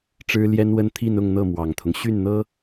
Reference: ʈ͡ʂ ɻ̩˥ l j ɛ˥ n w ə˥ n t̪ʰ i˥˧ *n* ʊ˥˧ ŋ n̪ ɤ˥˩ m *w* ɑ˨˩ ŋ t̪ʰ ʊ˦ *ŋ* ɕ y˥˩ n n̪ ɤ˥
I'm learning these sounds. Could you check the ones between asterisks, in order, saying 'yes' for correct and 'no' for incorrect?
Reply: yes, yes, yes

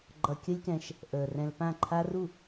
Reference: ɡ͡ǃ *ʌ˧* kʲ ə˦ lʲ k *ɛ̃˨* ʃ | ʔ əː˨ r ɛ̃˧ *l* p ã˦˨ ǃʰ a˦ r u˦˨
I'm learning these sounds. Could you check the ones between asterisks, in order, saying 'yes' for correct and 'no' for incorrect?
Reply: yes, no, yes

